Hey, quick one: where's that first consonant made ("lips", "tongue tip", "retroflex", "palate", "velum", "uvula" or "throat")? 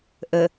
throat